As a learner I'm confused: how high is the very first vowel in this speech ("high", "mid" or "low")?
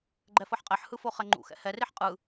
mid